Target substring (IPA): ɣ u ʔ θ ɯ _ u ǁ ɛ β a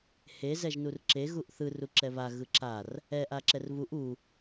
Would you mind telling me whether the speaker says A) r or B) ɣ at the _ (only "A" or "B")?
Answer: A